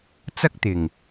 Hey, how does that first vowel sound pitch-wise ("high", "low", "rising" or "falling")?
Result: high